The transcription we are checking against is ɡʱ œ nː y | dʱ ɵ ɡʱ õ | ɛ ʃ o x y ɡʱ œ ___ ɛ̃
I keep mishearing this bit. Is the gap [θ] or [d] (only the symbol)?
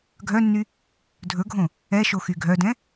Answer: d